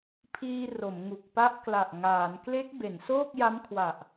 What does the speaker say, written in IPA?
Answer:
pʰiː˧ ro˩˦mŋu˨˩k̚ pa˦˥ʔkla˨˩ʔŋaː˩˦n kle˦˥k̚ be˩˦nsoː˥˩k̚ ja˦˥mkʰwa˨˩ʔ

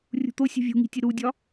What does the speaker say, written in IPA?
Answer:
rʲṳt̪o sʲṳvʲṳŋi̤tʲe ɾudʲɒ

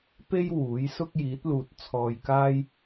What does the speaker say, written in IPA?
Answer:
pe˥j wuː˨˥j sʊ˥k̚jiː˨˥t̚luː˨t̚ t͡sʰɔː˧jkaː˥j

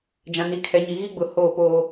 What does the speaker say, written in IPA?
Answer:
d͡ʒã˨ni˨˦kʰɛ˨˦ɲi˨ ɣi˦ɡ͡bʊ˨ hoː˦˨poː˦

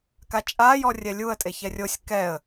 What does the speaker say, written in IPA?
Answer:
kat͡ʃʼa jɔrʲɛlʲuə̯ tʼeçɛrʲosʲ kɛə̯

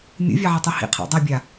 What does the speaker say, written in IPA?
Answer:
mʲṵvʲaʕatˤɨ hḭqʰa̰ dˤɛbʲa

